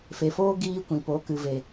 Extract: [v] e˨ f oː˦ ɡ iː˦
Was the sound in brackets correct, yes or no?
no